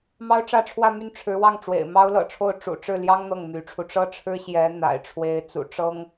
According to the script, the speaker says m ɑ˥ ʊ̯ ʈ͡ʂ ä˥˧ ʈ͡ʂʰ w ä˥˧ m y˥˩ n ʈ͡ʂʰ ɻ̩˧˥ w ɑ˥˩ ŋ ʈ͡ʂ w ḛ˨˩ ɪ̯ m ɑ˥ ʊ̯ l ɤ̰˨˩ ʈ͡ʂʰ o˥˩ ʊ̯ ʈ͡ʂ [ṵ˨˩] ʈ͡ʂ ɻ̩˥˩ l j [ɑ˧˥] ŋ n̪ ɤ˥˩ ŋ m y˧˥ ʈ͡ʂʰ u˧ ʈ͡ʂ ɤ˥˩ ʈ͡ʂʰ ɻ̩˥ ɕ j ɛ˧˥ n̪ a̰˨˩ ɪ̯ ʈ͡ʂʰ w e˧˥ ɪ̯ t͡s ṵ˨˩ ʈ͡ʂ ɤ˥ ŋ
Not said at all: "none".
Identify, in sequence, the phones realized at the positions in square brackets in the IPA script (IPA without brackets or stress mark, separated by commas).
ṵ˨˩, ɑ˥